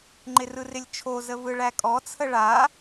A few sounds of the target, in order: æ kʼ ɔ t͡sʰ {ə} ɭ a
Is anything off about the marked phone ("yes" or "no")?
no